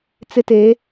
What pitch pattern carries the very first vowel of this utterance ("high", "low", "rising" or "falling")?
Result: high